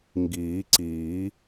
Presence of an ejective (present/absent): absent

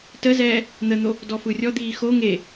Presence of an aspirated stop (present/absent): absent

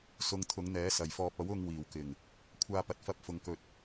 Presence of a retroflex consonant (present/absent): absent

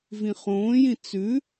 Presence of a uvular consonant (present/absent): present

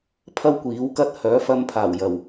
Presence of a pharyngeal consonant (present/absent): absent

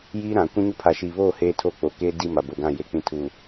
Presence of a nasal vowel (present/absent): present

